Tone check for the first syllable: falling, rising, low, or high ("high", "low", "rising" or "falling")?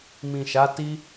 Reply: low